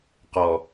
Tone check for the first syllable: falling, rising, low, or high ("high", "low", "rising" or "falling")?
low